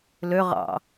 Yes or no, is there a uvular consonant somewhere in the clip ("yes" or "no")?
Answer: yes